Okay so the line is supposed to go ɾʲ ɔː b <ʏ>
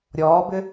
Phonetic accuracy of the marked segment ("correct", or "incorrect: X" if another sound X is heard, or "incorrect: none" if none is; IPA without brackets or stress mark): correct